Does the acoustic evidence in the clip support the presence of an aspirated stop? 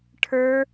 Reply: yes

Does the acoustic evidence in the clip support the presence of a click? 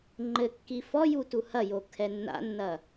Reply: yes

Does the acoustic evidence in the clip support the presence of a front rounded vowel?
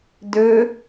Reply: yes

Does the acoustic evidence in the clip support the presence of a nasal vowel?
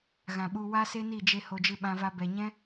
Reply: yes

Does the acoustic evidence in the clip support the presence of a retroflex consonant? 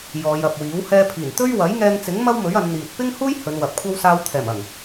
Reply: no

